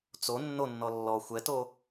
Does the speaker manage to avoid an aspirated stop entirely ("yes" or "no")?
yes